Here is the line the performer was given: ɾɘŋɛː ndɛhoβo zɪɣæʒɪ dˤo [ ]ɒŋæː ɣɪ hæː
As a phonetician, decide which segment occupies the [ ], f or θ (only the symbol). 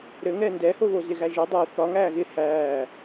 θ